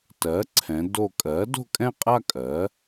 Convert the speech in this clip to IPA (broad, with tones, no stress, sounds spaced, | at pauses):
t ɜ˩˥ ǀʰ ɛ̃˩˧ d o˧˩ kʼ ɜ˩˥ d o̤˥˧ kʼ ɛ̃˥˧ qʼ a˥˧ kʼ ɜ˩˥